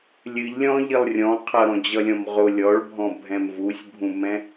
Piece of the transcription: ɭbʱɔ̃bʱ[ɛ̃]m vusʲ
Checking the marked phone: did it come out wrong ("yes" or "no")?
no